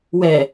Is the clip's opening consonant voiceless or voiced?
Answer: voiced